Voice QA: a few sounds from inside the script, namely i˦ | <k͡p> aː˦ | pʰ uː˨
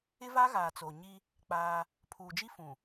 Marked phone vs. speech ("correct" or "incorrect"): correct